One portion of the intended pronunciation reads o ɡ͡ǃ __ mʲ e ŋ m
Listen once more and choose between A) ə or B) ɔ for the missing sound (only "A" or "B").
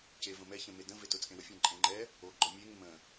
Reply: B